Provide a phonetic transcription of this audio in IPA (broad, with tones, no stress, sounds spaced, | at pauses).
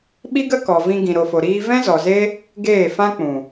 ɓ i˦ ɡ ə˦ k ɔ˨ v ĩ˧ ɡ ĩ˨ ɾ o˨ f o˨ ɾ iː˧ v ɛ̃˦ z ɔ˨ z e˦ | ɡ eː˦˨ f ã˦ k͡p ũ˨